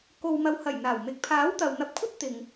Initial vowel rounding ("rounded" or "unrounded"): rounded